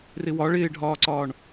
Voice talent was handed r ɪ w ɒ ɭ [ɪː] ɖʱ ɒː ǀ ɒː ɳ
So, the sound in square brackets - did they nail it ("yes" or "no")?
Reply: yes